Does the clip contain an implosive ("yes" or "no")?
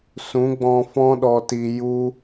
yes